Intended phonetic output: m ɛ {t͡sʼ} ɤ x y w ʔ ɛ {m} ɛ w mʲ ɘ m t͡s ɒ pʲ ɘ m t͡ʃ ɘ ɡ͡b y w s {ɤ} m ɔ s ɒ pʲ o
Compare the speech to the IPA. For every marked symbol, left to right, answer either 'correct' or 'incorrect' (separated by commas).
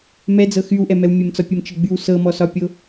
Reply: incorrect, correct, correct